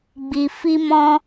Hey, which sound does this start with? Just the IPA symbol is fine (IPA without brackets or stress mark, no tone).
ɡ͡b